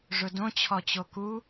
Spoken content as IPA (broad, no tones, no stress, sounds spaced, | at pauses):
ʐ ʊ d õ t͡ɕʰ ɔ t͡ɕ o k u